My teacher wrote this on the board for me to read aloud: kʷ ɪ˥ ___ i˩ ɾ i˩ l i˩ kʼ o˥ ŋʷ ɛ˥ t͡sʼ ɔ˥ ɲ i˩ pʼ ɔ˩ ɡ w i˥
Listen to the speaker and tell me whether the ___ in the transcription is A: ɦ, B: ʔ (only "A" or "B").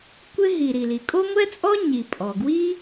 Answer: A